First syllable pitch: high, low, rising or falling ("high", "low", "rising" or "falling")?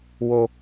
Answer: low